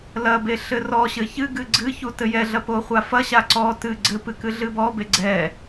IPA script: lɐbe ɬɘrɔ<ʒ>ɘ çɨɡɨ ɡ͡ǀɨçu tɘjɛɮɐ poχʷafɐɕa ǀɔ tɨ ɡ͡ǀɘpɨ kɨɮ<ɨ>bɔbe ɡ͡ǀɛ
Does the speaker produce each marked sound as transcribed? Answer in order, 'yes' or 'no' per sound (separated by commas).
no, yes